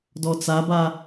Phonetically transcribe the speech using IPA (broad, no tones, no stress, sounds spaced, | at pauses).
d ɔ t͡s a b a